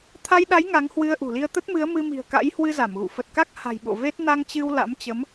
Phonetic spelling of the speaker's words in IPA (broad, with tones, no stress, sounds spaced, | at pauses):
t̪ʰ a˧ j ɗ a˨˦ j ŋ a˨˦ ŋ h w ɨ˧ ə̯ ʔ ṳ˨˩ l i˧ ə̯ t̪ ə˦˥ t̚ m ɨ˨˦ ə̯ m ɨ˧ m i̤˨˩ ə̯ k a̰˧˥ j h w ɨ˧ z a˧˩ m ɣ ṵ˧˨ f ə˨˩ t̚ k a˦˥ k̚ h a̤˨˩ j ɓ o̰˧˨ v e˦˥ t̚ n a˧ ŋ t͡ɕ ɨ˧ w l a̰˧˥ m t͡ɕ ə˨˦ m